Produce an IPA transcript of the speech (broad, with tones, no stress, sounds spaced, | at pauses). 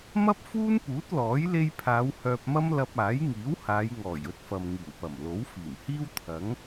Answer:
m ɐ˥ p̚ f uː˥ n p uː˨˥ t̚ l ɔː˨˥ j l e˧ j pʰ aː˨˧ w h œː˧ p̚ m ɐ˥ m l ɐ˧ p̚ aː˨˥ j ŋ iː˨˥ w h aː˨˧ j ŋ ɔː˨˩ j ɵ˥ t̚ f ɐ˨ m ŋ iː˨˩ w p ɐ˨˩ m l o˨˥ w f iː˨˩ m h iː˥ w t̪ʰ ɐ˨˥ ŋ